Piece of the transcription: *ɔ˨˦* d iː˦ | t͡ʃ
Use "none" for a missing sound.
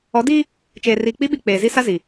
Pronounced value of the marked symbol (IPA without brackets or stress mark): ɔ˨˦